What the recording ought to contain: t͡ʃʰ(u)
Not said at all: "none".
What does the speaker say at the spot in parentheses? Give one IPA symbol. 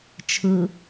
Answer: ɯ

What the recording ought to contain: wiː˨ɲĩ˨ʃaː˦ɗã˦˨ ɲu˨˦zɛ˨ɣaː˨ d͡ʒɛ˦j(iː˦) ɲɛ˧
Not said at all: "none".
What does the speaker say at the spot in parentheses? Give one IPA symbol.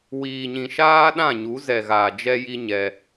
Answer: i˦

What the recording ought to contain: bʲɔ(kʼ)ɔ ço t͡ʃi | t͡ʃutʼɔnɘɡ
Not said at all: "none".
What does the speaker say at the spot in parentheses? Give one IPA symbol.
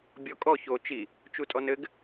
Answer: kʼ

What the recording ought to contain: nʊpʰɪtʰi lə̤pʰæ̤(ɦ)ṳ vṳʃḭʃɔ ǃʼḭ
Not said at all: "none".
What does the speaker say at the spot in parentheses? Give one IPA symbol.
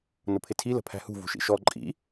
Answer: h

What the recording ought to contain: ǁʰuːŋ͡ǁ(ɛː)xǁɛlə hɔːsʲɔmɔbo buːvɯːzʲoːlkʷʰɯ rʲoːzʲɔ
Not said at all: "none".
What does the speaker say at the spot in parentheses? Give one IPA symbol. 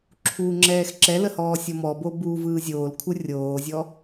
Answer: ɛː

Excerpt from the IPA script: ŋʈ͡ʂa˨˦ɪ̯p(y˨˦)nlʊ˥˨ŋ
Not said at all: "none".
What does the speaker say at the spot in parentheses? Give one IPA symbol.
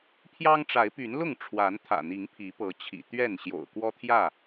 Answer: y˨˦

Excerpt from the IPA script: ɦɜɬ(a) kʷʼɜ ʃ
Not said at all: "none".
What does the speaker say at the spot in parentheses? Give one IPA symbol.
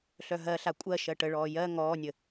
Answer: a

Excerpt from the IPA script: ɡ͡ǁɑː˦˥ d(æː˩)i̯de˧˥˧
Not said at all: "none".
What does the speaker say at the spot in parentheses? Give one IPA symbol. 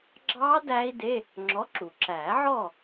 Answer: æː˦˥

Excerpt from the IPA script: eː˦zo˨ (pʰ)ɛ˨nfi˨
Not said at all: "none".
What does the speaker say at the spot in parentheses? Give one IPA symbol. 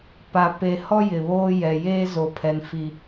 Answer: pʰ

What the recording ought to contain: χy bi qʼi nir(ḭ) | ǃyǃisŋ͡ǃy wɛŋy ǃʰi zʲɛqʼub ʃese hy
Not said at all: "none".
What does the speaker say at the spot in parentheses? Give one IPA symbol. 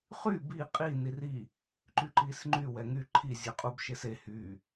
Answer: i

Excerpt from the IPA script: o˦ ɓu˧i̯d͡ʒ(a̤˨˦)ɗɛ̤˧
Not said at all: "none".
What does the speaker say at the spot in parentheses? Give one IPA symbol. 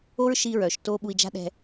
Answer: a̤˦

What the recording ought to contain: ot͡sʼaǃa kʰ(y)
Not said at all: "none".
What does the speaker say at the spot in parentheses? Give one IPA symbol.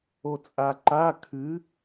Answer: ɨ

